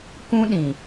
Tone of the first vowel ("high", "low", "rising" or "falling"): high